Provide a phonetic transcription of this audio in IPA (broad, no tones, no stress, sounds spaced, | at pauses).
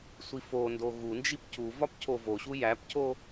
sʷ i f o n d o ɣ u n d͡ʒ i p cʰ u v ɒ p cʰ o v o ɕ u j æ p cʰ o